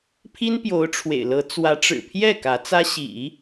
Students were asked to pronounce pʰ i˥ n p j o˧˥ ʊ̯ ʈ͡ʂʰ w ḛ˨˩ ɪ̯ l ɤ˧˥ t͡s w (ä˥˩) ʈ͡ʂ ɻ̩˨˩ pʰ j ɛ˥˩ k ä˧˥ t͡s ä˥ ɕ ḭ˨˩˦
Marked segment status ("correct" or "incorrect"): incorrect